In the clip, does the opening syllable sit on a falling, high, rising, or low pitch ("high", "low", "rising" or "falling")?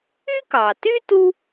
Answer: high